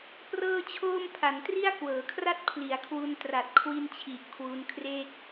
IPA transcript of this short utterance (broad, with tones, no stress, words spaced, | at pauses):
prɤː˥˩t͡ɕʰoː˥˩m pʰa˩˦ntri˥˩a̯kwɤː˩˦kʰra˥˩t̚ pʰli˩˦a̯kʰwu˧n tra˨˩t̚kʰwi˧nt͡ɕʰi˨˩ʔ kʰwu˦˥nkʰre˥˩k̚